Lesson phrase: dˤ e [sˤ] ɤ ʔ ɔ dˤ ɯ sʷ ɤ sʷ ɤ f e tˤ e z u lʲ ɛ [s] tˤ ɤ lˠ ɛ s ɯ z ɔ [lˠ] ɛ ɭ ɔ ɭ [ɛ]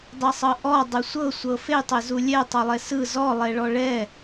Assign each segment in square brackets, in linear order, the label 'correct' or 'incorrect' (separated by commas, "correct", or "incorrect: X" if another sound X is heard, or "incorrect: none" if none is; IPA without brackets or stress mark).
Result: correct, incorrect: none, correct, correct